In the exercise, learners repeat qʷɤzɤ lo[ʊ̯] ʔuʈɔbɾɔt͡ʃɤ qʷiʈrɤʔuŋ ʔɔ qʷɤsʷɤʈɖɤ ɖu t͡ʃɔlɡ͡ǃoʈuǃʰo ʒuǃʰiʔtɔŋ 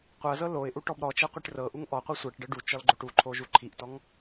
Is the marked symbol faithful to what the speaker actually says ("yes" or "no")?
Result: no